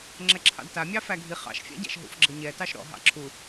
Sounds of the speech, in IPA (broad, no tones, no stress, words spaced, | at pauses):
ŋ͡ǁɛǁʰɑ̰dta mʲɑfæɡʱi χɑ̰ʃfʲa̰ɟa̰ʃ ɦṵfɡ͡ǁɤɲɛtɑʃ ɾɔ̰ ɦɑ̰ǁʰu